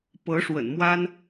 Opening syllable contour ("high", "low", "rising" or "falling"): rising